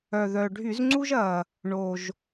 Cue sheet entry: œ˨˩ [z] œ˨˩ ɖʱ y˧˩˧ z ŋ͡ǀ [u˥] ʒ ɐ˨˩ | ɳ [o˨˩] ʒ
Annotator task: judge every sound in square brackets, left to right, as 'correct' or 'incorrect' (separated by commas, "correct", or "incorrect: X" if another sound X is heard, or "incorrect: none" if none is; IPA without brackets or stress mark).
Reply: incorrect: ð, correct, correct